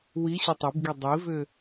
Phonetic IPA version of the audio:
w i ɕ u tˤ i b ɡ i dˤ i v ʏ

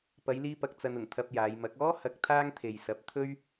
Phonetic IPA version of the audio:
p ɐ˨˧ j l iː˧ p ɐ˨ k̚ t͡s ɐ˧ n ʊ˨˩ ŋ t̪ʰ ɐ˧ p̚ j aː˨˧ j m ɐ˨˥ k̚ ɔː˥ h ɐ˨˥ k̚ t̪ʰ aː˥ ŋ t̪ʰ e˨ j s ɐ˨˥ p̚ t̪ʰ ɵ˥ ɥ

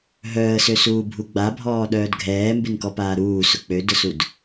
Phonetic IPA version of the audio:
ɦ œː ə̯ s ø s uː bʱ u ɡ͡b a bʱ ɔː ɗ œː d ɡʱ ɛː m b ɪ n k ɔ p aː ɾ uː s ʊ k͡p ø d ʊ s u d

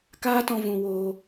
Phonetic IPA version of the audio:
k aː˦ t ɔ̃˧ v ũ˧ w oː˧

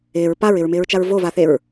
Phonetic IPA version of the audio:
ɪː ɹ p a ɹ ɪ ɹ m ɪː ɹ t͡ʃ a ɹ v o v a θ e ɹ

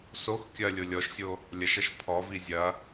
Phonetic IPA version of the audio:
s o x kʲ ɐ lʲ o lʲ ɔ ʃ sʲ o | lʲ ɐ ʃ ɐ ʃ pʰ ɔ v i zʲ ɐ

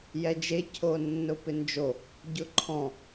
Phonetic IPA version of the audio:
j ɛ d͡ʒ e cʰ o nː ʊ p ɪ n d͡ʒ o | ɟ ʊ ǃʰ ɔ̃

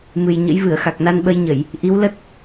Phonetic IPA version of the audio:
m ɨ˨˩ j ɲ ə̰˧˥ j v ɨ˧˩ ə̯ x a˨˩ k̚ n a˧ n ɓ ə˧ j ɲ ə˧˩˨ j | ʔ i˨˦ w l ə˦˥ t̚

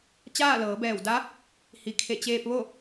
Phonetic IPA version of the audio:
t͡ɕ aː˥˨ l ɤː˩˧ b ɛː˧˩ w d a˧˥ | h i˩ kʰ e˧˩ t͡ɕ eː˧ p̚ ʋ o˥˨

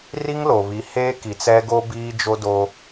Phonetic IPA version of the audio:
r i˦ ŋ l o˨ β i˨˦ h eː˦ k i˨ t͡s ɛ˦ ɡ o˦ b iː˦ d͡ʒ o˦ d o˦

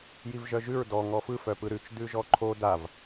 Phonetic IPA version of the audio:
j i v ʒ œ ʒ ʉ ɹ d ɔ ŋ ɔ f ɯ f œ p ɯ ɾ ʉ t͡ʃ d ʉ ʒ ɔ ǃʰ o d a v

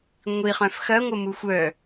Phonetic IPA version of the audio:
ŋʷ i χ œ̃ f x ɐ ŋʷ ə m u xʷ œ

